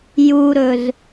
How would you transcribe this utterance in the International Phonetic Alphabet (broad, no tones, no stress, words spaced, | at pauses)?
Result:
juɾɵz